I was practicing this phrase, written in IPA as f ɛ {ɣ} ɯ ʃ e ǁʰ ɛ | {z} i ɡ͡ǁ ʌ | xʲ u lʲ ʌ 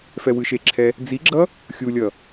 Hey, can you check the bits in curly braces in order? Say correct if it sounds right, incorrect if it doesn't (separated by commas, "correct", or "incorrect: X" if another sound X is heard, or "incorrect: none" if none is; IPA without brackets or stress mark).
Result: incorrect: w, incorrect: d͡z